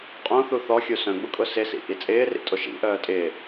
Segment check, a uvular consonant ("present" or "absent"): present